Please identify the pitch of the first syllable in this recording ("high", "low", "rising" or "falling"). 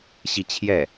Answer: falling